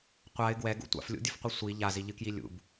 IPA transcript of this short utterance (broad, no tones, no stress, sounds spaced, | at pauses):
qʷ a ɪ̯ ɡ w ɛ ɡ ṵ tʷ a̰ f lʲ ṵ dʲ ɨ f qʷ i sʷ i ʎ a z i ʎ ɨ k j i lʲ ṵ b